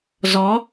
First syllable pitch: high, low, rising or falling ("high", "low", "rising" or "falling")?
rising